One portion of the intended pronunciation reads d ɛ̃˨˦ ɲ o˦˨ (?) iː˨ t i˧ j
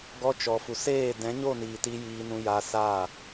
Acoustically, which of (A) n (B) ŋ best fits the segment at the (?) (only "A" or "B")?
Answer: A